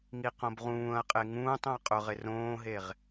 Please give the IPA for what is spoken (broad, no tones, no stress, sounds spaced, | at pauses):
ŋ i q õ b ʁ ũː ɐ̯ qʼ e ŋ ũː tˤ õ ɐ̯ qʼ ʊ ʁ ɪ r õː ɦ e ʁ